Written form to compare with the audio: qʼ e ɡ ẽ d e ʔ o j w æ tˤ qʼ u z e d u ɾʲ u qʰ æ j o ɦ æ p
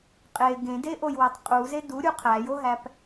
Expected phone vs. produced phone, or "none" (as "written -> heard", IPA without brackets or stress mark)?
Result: none